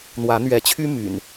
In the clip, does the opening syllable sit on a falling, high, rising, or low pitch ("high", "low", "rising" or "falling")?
rising